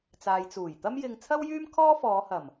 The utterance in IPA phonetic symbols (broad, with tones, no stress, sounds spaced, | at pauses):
t͡s aː˨ j t͡s uː˨˩ j t̪ ɐ˥ m j ɪ˧ ŋ t͡sʰ ɐ˥ w j yː˥ m kʰ ɔː˥ f ɔː˨˧ h ɐ˨˩ m